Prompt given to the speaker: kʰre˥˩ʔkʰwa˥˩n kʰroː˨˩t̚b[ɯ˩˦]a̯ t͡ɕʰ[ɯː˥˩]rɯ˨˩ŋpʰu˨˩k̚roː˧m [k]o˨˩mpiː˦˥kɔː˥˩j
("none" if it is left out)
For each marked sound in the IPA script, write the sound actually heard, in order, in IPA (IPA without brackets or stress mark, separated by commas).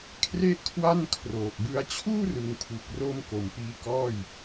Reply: ɯ˦˥, uː˥˩, k